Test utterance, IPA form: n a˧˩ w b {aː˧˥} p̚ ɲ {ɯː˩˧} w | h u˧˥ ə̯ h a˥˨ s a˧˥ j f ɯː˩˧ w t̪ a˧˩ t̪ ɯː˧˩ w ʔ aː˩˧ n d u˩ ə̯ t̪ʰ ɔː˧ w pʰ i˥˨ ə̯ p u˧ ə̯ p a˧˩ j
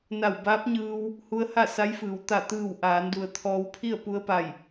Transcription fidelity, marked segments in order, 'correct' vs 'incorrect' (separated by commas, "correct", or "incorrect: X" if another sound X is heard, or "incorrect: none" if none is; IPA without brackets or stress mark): correct, incorrect: ɯː˧